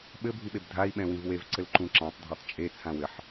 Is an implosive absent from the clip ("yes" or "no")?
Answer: no